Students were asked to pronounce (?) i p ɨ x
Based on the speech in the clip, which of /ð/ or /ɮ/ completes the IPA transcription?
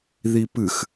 ð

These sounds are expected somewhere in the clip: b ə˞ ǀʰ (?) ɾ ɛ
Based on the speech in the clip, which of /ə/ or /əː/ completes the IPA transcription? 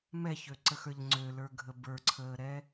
əː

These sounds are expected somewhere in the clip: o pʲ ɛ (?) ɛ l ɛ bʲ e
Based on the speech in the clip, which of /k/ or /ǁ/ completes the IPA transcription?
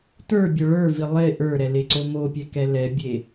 k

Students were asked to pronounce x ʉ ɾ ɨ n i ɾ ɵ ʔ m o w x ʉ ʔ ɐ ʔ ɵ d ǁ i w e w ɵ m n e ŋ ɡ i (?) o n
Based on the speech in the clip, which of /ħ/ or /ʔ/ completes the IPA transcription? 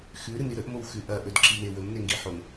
ħ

